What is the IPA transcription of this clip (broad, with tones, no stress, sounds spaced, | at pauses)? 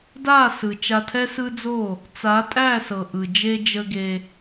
d a˦˨ s ɯ˨ t͡ʃ a˧ tʰ ɛ˦ s ɯ˦ d͡z o˦˨ | t͡s a˨˦ tʼ æ˦˨ s ɤ˨ ʔ ɯ˨ d͡ʒ e˧ d͡ʒ ə˧ ɡ e˧